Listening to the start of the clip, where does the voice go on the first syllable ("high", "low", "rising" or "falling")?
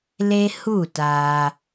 high